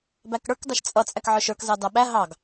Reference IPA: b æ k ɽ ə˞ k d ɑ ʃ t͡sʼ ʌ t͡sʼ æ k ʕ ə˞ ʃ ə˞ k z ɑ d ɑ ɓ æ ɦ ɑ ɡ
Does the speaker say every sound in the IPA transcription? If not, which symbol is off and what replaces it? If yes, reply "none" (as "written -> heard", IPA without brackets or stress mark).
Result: none